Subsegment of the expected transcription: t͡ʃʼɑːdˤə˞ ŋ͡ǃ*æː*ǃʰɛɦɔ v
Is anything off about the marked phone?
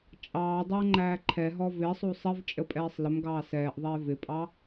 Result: no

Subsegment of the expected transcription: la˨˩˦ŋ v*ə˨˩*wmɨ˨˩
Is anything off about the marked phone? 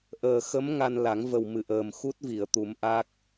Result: no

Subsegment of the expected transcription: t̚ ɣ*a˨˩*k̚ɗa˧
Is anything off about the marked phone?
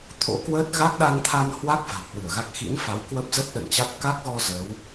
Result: yes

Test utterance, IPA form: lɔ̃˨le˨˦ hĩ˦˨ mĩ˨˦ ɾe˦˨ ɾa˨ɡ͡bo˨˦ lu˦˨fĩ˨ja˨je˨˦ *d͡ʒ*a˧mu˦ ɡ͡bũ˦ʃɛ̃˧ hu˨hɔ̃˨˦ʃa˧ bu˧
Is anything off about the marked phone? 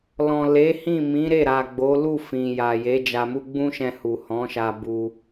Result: no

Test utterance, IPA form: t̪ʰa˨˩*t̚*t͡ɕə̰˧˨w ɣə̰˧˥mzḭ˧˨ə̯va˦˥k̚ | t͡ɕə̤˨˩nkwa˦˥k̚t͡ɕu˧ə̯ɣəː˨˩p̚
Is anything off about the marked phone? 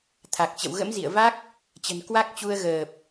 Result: yes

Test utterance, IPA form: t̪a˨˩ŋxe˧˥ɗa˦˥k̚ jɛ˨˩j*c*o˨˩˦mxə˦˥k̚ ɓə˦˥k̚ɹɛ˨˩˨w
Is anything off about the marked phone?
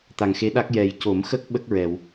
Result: no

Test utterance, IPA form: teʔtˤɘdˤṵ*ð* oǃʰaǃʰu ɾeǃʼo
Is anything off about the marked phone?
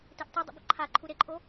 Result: yes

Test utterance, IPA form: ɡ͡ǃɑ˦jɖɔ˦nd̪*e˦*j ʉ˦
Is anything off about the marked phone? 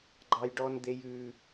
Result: no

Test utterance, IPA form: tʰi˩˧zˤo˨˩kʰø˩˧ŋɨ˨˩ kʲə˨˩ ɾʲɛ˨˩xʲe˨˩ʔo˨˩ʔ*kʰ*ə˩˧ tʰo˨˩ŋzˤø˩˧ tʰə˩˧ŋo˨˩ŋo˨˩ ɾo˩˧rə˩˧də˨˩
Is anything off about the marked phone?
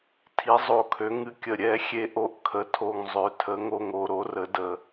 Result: no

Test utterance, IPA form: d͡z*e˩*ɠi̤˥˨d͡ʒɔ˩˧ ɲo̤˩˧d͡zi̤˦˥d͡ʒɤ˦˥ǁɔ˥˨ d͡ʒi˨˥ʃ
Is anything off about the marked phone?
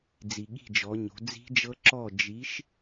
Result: yes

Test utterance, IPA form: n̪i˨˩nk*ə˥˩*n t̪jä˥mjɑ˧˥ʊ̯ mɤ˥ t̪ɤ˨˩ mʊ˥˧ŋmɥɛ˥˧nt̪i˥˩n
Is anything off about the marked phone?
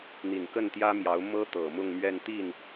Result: no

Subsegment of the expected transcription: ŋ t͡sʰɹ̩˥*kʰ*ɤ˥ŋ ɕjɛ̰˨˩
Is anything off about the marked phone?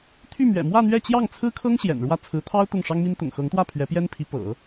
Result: no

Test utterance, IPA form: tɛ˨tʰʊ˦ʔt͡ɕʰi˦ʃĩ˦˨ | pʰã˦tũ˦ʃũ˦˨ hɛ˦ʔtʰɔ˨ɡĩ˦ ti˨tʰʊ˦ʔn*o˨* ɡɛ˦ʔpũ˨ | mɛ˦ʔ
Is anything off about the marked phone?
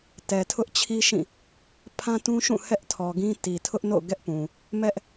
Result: yes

